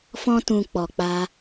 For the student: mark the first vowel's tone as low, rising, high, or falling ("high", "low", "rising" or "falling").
high